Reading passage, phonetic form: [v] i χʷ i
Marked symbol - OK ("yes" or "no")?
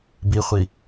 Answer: no